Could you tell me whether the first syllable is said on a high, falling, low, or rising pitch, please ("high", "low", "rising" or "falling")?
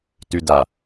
low